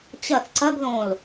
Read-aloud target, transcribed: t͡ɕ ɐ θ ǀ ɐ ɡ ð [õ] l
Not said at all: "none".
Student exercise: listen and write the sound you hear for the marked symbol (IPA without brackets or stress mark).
õ